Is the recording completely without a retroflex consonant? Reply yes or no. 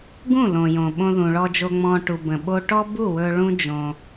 no